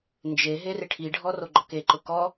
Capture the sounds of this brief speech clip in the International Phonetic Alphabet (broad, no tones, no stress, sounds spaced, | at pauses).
n d͡ʒ e ɦ e r ɪ ʈʰ i ɖʱ ɔ r o ɡ͡ǃ ɔ k e ǃ ʊ k ɔ